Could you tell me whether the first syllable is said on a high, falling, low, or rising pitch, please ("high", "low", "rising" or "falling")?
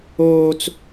high